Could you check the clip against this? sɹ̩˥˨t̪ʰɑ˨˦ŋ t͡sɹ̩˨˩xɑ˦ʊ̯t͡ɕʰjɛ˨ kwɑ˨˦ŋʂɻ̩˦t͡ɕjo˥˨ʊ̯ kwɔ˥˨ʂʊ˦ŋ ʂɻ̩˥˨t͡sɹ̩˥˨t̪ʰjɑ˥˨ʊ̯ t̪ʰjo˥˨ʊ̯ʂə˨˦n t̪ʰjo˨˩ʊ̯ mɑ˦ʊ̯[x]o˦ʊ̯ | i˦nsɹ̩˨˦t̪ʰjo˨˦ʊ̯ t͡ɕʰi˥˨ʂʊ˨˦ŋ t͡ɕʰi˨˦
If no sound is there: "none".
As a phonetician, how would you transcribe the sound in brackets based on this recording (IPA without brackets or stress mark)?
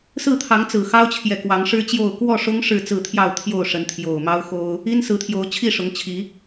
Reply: x